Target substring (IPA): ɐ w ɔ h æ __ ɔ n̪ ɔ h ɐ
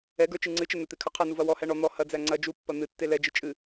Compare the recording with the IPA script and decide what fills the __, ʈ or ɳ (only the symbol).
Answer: ɳ